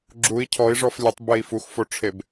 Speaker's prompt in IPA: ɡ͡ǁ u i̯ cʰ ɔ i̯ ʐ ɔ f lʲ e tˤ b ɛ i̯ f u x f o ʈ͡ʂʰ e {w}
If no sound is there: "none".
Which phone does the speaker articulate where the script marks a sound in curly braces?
b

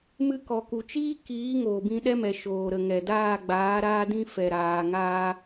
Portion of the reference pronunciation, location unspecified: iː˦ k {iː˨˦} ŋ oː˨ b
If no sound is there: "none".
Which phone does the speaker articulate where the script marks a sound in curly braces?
iː˨˦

